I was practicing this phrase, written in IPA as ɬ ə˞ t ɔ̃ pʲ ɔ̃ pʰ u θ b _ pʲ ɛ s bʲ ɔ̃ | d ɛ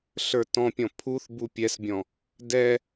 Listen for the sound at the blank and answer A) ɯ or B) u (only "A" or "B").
B